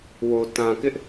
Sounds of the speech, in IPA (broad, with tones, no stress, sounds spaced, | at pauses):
w o˨ t ã˨ k ɪ˦ ʔ